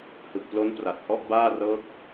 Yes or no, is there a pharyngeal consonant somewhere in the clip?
no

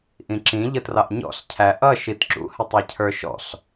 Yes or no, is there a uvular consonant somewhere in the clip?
no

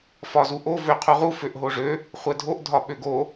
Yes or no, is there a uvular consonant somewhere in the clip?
yes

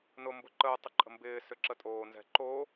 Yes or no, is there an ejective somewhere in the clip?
yes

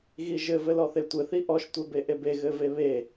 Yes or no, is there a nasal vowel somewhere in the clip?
no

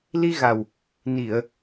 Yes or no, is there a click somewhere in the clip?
no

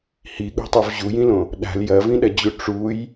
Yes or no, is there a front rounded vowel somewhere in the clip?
no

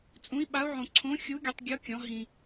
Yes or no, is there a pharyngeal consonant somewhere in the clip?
yes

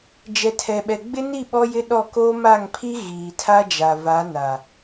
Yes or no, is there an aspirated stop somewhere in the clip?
yes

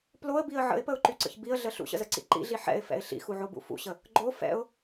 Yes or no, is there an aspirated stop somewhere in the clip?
no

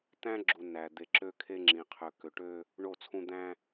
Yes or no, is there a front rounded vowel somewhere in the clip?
yes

